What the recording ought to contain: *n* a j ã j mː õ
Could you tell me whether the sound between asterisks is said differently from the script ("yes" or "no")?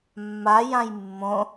yes